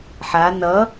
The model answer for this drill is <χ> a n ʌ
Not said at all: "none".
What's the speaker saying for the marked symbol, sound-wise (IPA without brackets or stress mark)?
ħ